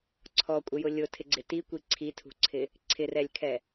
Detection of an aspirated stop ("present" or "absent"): present